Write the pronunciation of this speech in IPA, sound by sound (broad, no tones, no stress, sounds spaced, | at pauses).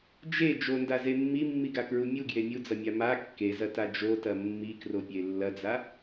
d͡ʒ e d͡ʒ o n d a z e mː i mː i ɡ a k ɹ u mʲ u ɡ j e mʲ u d͡z ɐ mʲ a m a kː e z ɐ t a d͡ʒ o t ɐ mː i k r o pʲ e lː ɐ d͡z a